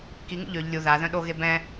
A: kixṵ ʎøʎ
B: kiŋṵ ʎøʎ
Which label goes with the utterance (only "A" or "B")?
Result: B